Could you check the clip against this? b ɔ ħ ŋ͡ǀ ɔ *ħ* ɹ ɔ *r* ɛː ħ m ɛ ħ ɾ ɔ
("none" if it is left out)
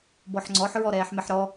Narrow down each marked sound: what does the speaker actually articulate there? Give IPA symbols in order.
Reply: ħ, ɾ

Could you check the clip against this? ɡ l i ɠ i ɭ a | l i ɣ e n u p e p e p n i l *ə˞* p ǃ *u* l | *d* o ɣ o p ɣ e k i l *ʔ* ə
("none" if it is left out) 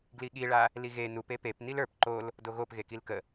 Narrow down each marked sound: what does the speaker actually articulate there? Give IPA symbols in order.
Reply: ə˞, o, d, k

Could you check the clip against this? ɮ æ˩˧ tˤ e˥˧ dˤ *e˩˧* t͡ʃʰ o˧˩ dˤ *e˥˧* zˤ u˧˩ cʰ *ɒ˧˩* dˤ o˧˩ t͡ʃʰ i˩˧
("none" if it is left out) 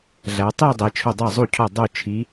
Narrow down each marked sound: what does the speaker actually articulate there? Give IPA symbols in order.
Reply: e˩˧, e˧˩, ɒ˧˩

